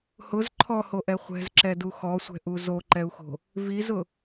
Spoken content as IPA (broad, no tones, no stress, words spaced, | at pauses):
hʊz ǃʰɔhoʔɛ χʷɛ̤zǁɛdu xɔsʷɛ̤ʔu zoǃɛu̯xo̤ | vizʊ